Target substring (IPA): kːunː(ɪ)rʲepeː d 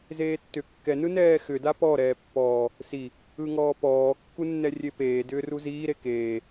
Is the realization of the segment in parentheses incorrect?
yes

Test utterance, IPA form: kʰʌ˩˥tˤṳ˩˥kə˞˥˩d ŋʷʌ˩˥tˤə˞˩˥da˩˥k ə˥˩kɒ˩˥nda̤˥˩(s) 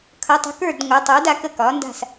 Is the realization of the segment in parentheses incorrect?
no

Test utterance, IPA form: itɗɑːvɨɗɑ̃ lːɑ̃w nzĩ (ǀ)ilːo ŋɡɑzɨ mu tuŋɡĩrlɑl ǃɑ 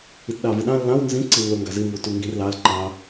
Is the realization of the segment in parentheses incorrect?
no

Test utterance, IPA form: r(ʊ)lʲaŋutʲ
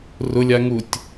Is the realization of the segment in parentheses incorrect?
no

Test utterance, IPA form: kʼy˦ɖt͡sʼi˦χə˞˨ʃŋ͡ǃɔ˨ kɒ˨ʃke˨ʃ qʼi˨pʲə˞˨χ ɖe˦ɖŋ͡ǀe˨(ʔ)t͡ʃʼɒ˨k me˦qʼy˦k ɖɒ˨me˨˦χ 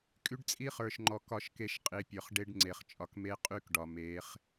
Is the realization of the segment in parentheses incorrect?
yes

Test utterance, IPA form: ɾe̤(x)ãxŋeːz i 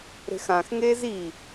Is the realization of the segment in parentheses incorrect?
no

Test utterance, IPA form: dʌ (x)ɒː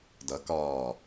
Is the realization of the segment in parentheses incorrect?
yes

